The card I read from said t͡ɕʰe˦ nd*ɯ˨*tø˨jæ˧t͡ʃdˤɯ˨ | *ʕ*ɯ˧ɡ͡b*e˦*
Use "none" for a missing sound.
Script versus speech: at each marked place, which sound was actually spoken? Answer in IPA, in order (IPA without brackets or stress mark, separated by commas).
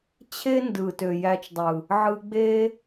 ɯ˨, ʕ, e˦